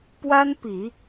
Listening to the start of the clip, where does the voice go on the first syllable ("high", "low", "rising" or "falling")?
high